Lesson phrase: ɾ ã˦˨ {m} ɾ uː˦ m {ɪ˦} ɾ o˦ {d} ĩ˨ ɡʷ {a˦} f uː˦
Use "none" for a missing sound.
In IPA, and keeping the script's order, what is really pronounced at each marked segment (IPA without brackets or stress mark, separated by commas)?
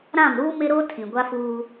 m, ɪ˦, tʰ, a˦